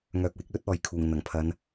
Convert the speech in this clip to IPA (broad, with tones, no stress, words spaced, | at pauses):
ŋœː˨k̚wɪ˨˥k̚lɵ˥t̚ ɔː˨jkʰuː˨˩ŋ n̪ɐ˨˩ŋpʰɐ˨˧n